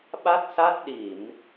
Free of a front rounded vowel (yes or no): yes